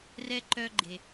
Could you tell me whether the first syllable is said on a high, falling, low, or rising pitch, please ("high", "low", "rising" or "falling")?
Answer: high